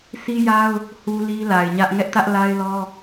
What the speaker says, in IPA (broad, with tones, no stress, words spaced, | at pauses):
sʰi˦ja˦ʊ̯ | hu˦li˦ la˨ɪ̯ɲä˦ʔ ŋɛ˦ʔtä˦ʔ la˦ɪ̯lɔ˦